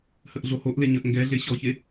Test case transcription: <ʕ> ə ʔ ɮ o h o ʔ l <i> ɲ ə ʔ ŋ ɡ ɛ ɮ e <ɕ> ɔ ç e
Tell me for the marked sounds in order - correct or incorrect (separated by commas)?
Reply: incorrect, incorrect, correct